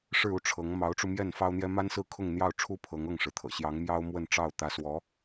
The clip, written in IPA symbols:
ʂɻ̩˥˧ u˥˩ʈ͡ʂʰɤ˧˥ŋ mɑ˧˥ʊ̯ʈ͡ʂu˧mjɛ˥˩n fɑ˥ʊ̯n̪jɛ˥ ma˥nsɹ̩˥˧ kʰʊ˥˧ŋn̪jɑ˥˩ʊ̯ʈ͡ʂʰu˥ pʰɤ˧˥ŋ ɤ˥˩ŋʂɻ̩˩t̪ʰɤ̰˨˩ ɕjɑ˧˥ŋmjɑ˥ʊ̯ mwə˥˧nʈ͡ʂɑ˥˩ʊ̯ t̪ä˧˥swɔ˧˥

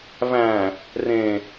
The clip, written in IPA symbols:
væ̃ | rẽ

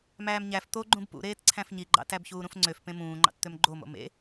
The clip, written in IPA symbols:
mæːmɲæf t̪oɡ͡ǃũb pṵ ɾeːtǀʰæ̃fɲiɡ͡ǃɑ̰ tæbçuːɾũfŋ͡ǀøf pẽmũːŋ͡ǃɑ̰t t̪ømɡ͡ǃomo̰ mḛ

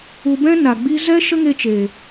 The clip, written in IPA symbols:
u˧bɛ̃˦ na˨ɡ͡bi˧zɛ˦ ʃə˦ŋe˧t͡ʃeː˨

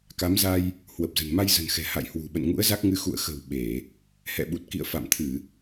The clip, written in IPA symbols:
ka˨˦mza˧j | hwə˨˩p̚zə̤˨˩nma˧j zə̤˨˩nxɛ̤˨˩ ha̰˧˨jhwṳ˨˩ ɓə̰˧˨nŋṵ˧˥ə̯za˦˥k̚ŋɨ˧ xṵ˧˨ə̯xə̤˨˩w ɓe˧˩˨ | hɛ̰˧˨ɓu˨˩t̚kḭ˧˨ə̯ fa̰˧˨mt̪ʰɨ˧˩˨

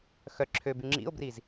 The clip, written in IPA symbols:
xœ ǁʰøby ŋ͡ǁḭo̯briz

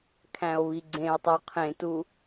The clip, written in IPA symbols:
kʰæ̃o̯βiɡ͡ǀẽo̯tˤo qʰẽtu

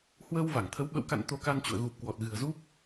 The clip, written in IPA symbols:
hwəː˧wva˧˩ŋt̪ʰə˨˦w ɓə̰˧˨wka̰˧˨n t̪o˧ka˧nt͡ɕṵ˧˨ə̯ ɣu˨˩p̚kwɔ˨˩t̚ ɣɨ̤˨˩ə̯zu˦˥p̚

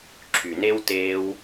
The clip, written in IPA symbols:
ǁʰy˨ne˦w teː˧w

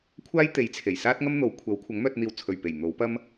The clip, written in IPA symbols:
kʷʰaː˥j t̪e˨˥jt͡sʰe˨˩jsaː˥t̚ ŋɐ˥mn̪o˨˥w kʷʰɐ˨˥w kʷʰɐ˨˥ŋmœː˧t̚n̪iː˨w t͡sʰɵ˨˩ɥpe˨˩j n̪o˨˥wpɐ˥m

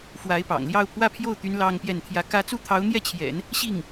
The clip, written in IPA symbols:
fwa˧˥ɪ̯pɑ̰˨˩ŋljɑ˥˧ʊ̯ pʰwä˥˧pʰjo˥˩ʊ̯t̪y˧˥n lɑ˥ŋpjɛ˥˩nt̪ʰjä˥ kä˥ t͡su˥˩t̪ʰɑ˧˥ʊ̯n̪jɛ˥˩t͡ɕʰjɛ̰˨˩˦n | ɕi˥˩ŋ

